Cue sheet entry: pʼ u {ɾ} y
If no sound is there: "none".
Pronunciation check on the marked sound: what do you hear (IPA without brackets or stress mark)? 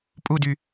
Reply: d